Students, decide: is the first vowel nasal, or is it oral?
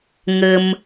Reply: oral